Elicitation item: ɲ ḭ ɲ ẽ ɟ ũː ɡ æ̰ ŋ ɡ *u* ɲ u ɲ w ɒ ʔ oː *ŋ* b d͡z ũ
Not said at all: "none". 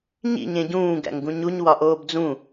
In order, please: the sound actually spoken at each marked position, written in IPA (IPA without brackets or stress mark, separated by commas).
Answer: ũ, none